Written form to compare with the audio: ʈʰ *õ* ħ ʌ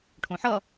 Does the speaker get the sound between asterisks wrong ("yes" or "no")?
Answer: no